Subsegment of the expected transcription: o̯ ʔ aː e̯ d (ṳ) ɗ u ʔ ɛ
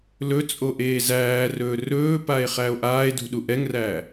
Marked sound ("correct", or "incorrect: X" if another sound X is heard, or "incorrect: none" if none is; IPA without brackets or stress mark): correct